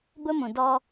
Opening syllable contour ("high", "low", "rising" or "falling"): high